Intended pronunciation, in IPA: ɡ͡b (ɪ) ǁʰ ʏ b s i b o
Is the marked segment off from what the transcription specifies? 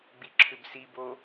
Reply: yes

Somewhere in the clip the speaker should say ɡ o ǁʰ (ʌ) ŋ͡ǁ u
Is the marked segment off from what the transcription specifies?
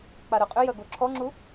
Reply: yes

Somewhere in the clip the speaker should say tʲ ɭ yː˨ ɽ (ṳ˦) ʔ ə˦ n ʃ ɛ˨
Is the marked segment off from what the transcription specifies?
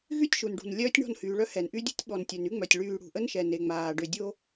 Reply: yes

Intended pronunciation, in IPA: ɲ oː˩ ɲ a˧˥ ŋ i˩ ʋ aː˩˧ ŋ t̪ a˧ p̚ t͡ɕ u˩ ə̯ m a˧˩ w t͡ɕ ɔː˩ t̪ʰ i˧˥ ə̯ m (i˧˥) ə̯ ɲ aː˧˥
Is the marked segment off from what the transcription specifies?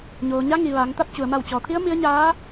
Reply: no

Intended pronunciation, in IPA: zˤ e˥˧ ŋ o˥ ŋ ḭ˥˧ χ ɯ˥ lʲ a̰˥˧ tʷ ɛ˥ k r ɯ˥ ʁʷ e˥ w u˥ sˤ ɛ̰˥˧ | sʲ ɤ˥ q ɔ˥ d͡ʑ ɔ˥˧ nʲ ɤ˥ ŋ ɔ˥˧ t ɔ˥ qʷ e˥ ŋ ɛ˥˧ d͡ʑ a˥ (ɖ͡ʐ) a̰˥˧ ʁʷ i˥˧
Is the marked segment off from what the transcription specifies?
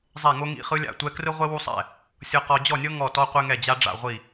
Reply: no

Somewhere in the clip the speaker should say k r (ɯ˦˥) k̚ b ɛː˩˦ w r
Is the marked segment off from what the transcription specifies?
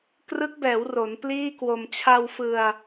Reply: no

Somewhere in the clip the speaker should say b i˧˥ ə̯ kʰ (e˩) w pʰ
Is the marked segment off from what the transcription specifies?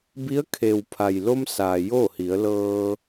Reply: no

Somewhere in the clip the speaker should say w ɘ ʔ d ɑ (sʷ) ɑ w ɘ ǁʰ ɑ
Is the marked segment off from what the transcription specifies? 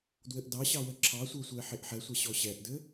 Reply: yes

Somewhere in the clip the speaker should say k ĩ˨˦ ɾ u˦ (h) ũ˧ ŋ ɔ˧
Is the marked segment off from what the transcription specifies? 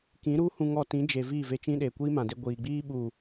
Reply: no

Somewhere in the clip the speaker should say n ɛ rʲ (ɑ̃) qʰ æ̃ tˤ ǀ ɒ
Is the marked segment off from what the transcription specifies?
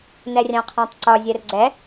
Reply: no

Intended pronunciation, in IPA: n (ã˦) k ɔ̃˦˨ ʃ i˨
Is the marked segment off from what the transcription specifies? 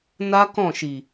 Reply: yes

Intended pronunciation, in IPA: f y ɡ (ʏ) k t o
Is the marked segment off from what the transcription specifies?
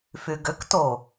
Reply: no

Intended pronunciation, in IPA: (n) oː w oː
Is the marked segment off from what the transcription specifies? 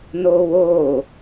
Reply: no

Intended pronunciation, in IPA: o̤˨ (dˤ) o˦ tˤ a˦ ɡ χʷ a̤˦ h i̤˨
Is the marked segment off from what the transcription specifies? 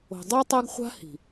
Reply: no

